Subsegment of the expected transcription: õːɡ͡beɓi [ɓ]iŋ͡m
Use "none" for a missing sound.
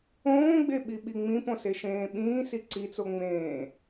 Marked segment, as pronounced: ɓ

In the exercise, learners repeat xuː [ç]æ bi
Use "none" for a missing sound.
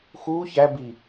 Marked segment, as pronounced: ç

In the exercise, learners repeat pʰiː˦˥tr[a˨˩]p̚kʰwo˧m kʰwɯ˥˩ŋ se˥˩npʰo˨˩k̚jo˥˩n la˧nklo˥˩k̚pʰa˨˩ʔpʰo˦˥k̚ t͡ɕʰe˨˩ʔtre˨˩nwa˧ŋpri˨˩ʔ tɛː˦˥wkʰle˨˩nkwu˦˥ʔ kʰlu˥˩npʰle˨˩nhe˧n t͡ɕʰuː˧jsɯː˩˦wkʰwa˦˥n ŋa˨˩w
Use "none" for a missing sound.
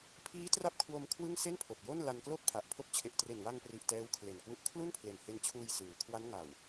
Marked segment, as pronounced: a˦˥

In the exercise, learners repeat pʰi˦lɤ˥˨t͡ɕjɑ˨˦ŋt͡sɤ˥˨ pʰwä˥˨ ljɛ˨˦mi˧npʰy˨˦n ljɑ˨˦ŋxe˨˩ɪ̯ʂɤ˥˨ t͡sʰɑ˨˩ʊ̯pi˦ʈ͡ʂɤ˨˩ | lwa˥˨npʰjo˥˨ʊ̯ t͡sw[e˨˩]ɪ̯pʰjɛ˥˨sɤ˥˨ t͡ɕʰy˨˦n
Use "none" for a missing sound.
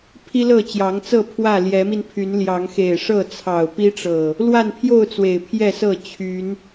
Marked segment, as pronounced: e˨˩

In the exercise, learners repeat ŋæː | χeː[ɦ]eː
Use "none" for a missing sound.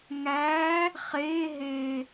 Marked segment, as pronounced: ɦ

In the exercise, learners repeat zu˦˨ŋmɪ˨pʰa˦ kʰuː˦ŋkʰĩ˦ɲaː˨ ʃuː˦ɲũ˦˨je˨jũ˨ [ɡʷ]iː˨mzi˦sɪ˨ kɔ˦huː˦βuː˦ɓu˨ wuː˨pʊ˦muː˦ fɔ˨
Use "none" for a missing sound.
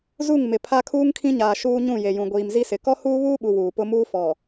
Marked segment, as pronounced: ɡʷ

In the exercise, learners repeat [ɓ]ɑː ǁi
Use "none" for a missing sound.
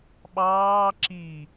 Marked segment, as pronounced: ɓ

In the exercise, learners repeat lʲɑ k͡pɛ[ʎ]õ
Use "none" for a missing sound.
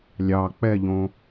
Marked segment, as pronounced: ʎ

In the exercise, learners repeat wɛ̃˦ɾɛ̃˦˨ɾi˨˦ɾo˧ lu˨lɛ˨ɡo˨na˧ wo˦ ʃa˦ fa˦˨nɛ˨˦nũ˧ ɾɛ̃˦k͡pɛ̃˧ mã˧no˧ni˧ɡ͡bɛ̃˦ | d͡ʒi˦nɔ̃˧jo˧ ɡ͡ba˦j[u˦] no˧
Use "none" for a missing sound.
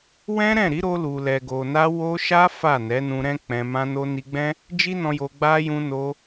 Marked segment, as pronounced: ũ˦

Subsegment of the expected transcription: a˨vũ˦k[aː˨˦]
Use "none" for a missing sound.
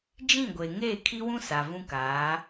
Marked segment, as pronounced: aː˨˦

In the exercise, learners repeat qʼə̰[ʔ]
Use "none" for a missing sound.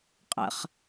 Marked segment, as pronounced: χ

